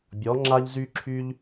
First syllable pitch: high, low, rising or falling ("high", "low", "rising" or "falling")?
rising